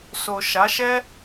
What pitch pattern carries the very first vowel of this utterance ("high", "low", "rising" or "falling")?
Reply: low